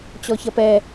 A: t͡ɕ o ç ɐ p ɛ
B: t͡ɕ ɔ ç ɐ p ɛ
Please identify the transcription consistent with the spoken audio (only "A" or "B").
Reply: B